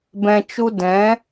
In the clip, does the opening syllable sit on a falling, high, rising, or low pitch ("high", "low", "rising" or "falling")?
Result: low